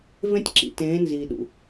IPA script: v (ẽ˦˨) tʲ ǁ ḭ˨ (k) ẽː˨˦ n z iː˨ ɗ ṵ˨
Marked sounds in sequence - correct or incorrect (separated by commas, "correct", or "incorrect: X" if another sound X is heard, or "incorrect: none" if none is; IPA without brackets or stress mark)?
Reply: incorrect: ẽ˦, incorrect: t